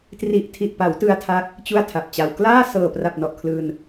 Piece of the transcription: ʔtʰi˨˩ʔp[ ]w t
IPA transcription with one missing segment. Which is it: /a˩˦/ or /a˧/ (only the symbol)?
a˩˦